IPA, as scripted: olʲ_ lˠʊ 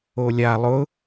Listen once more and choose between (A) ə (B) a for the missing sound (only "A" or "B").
B